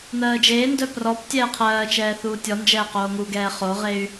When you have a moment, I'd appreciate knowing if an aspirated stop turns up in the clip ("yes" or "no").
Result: yes